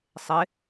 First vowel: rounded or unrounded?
unrounded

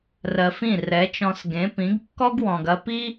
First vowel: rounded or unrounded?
unrounded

